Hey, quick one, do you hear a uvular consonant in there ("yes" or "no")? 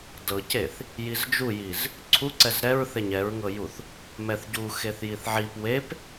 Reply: no